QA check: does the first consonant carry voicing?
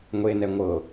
yes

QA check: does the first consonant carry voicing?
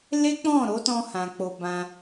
yes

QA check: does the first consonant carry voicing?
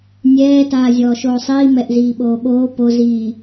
yes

